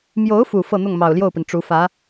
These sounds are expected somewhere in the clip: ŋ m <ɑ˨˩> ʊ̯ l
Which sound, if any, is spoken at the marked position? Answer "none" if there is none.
ɑ˨˩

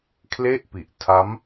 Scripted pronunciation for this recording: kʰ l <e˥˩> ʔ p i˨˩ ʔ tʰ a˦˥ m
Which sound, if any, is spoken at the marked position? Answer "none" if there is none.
e˥˩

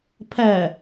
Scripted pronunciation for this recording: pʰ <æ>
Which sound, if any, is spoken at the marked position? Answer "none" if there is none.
æ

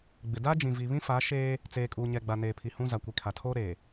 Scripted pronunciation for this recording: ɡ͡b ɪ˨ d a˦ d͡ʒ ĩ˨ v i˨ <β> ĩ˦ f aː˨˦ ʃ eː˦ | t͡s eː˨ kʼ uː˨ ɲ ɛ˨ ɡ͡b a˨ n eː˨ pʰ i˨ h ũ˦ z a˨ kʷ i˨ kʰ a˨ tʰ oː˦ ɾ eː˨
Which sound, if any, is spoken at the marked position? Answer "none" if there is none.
β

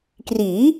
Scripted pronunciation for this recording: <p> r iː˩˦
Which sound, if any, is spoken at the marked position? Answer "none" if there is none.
k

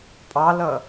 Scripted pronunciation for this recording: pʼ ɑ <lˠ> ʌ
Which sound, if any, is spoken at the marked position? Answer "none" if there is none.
l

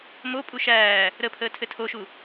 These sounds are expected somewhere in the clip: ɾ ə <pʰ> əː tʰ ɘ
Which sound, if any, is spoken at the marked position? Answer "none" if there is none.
pʰ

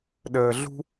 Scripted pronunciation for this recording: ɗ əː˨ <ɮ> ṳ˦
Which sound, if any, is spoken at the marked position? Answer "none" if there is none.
ɮ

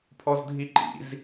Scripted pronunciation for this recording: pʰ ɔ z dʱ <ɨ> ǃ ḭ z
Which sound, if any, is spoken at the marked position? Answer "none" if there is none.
i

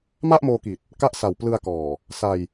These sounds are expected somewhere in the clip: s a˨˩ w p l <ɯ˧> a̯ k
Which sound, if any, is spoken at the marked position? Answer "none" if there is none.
ɯ˧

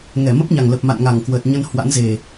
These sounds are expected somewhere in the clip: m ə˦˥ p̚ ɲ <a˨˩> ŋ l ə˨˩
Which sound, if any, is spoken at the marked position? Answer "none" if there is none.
a˨˩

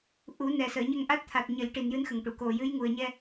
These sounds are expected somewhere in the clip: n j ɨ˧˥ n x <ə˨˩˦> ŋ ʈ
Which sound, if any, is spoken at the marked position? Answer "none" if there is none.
ə˨˩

